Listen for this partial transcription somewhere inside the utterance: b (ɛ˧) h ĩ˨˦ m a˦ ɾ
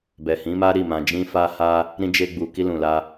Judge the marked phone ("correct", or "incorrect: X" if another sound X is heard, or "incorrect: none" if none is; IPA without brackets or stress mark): incorrect: ɛ˨